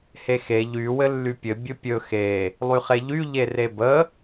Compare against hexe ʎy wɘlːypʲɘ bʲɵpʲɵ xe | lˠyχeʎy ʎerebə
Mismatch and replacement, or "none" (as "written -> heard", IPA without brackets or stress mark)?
none